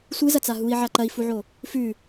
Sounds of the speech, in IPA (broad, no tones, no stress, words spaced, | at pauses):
sʷɨzɐt͡sa ɦui̯ʕa ǃɐi̯fuʕo | fʉ